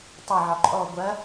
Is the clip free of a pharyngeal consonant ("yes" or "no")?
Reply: no